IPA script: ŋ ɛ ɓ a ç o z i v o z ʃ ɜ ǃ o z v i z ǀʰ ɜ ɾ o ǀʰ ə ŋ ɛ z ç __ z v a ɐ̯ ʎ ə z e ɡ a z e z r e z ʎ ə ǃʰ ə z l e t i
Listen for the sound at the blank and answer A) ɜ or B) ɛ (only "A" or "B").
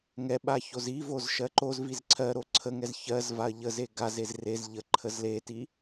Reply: A